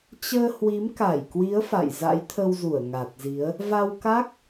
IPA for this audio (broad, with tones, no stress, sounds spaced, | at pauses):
t͡ɕ əː˧ h w i˨˦ m k a˧˩ j k w i˨˦ ə̯ f a̰˧˨ j z a̰˧˥ j t̪ʰ ə˧ w z u˧˩ ə̯ ŋ a˨˩ t̚ z i˨˦ ə̯ | v a˧ w k a˦˥ k̚